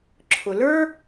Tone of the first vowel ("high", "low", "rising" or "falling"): low